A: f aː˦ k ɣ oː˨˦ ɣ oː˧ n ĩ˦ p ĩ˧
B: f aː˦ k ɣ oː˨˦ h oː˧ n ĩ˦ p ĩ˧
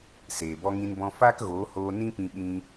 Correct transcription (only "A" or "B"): B